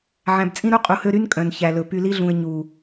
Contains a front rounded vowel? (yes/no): yes